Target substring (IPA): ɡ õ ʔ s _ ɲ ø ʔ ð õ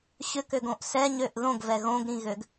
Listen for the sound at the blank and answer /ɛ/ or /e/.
ɛ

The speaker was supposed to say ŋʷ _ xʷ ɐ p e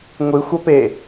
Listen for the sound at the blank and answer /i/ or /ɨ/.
ɨ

